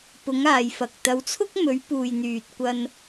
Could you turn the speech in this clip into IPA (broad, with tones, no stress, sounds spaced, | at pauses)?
p ʊ˨˧ ŋ aː˨ j f ɐ˨ k̚ t̪ ɐ˨˧ w t͡sʰ ʊ˥ k̚ m ɵ˨˧ ɥ p uː˨ j n̪ yː˨ t̚ kʷ ɐ˧ n